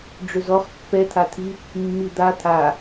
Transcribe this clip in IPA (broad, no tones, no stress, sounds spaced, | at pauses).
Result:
ɖ͡ʐ ʏ z ɔ χ pː ɛ t̪ʰ a t̪ʰ i | mː i d̪ a t̪ʰ a